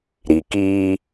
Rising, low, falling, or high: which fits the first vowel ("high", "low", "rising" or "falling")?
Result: low